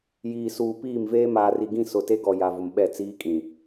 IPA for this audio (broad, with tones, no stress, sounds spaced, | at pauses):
j iː˨ s uː˨ p iː˦˨ m v eː˦ m aː˨ r i˨ ɡ ĩ˦˨ s ʊ˨ t e˦ ɡ ɔ˨ j a˨ v ʊ˨ m ɓ ɛ˦˨ t͡s iː˦ kʼ ĩ˨